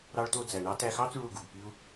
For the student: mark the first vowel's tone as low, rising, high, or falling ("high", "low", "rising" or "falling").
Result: high